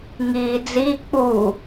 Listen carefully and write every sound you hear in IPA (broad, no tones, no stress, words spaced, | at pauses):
ŋiːd͡zi k͡pu